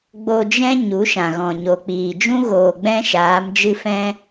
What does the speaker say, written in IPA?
ɡ͡b o˧ d͡ʒ ɛ̃˦ ɲ u˨˦ ʃ ã˨ ɣ ɔ̃˨ ɲ o˨ k͡p iː˨ d͡ʒ ũ˦ ɣ oː˨ ɡ͡b ɛ̃˦ ʃ aː˨˦ m d͡ʒ ɨ˦ f ɛ̃˦

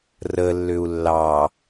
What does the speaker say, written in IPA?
r ə lː ʏ u̯ lː ɑ

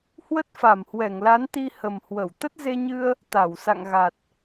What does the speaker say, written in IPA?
h w ə˦˥ t̚ f a˧˩ m h w ɛ˧˩ ŋ l a˨˦ n t̪ i˧ h ə˨˩ m h w ə˧˩ w t̪ ə˦˥ t̚ z e˧ ɲ ɨ˧ ə̯ | t̪ a˧˩ w s a̰˧˨ ŋ ɣ a˨˩ t̚

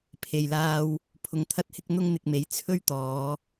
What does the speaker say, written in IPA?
pʰ e˨ j l aː˧ w | pʰ ʊ˧ ŋ t̪ʰ ɐ˥ t̚ h ɪ˥ k̚ n̪ ʊ˥ ŋ n̪ ɪ˧ k̚ m e˨˥ j t͡sʰ ɵ˥ ɥ t̪ ɔː˨˧

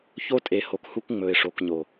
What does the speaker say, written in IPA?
ç o˦ tʼ e˨ h o˨ k h u˦ k ŋ͡m ɵ˨ ɪ̯ ʂ o˨ k ɲ o˨

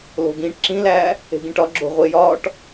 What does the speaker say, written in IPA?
l o̤ ɡ ĩː ʈ ǁ ĩ l æː | e̤ ɡ ĩ ʈ ɒ ɡ͡ǁ o̤ ʁʷ e j ɒː ʈ

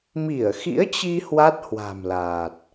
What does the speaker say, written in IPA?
m i˧˩ ə̯ x ḭ˧˥ ə̯ t͡ɕ i˧ h w a˦˥ t̚ h w a̤˨˩ m l aː˨˩ t̚

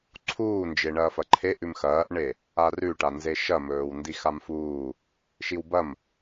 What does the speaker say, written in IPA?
ǀʰ uː n d͡ʒ e ɳ ɐː f ɐ ǃʰ e ʔ ʉ m x ɐː ʔ ɳ e | a r ʉ ʈ a n z e ʃ ɐ m ɵː w n d i x a m f uː | ʃ i w b ɐ m

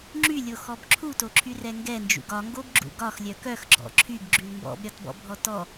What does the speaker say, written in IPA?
ŋ͡ǁ y lʲ o x ɔ b ǁʰ u t o ǁʰ y r ɛ ŋ ɡ ɛ n d͡ʒ ṵ ɡ ɒ ŋ ɡ o b ɡ͡ǁ ṵ ɡ ɒ x lʲ œ k œ x ɡ͡ǁ ɔ̰ ǁʰ y ɡ ɡ͡ǁ y l m b ɔ̰ b ɾʲ ɒ t b ɔ̰ bʱ ɔ t ɔ

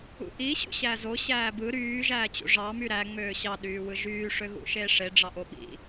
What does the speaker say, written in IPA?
ṵ ʔ i ɕ ṵ ɕ æ z o ɕ æː b ɯ ɾ yː ʒ æː t͡ɕ ṵ ʐ ɑ m y ɾ æ ŋ͡m øː ɕ ɑ ɗ yː w ɯ ʒ yː ʂ ø ɣ ṵ ʃ eː ʂ e ɖ͡ʐ ɑ ʔ o ɓ ḭ

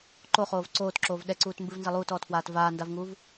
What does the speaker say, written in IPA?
ǃ o χ oː v ǀ oː t ǁ oː v ɗ ɛ ǀ uː t m b ɨ v n z ɐ lˠ uː t ɔː t f w aː t v aː n d a v ŋ uː v

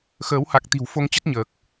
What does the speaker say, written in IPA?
x əː˨˦ w h a˨˩ k̚ t̪ i̤˨˩ w f o˨˦ ŋ t͡ɕ ə˦˥ t̚ ɲ əː˨˩ k̚

